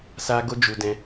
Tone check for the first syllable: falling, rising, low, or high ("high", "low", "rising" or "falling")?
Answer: high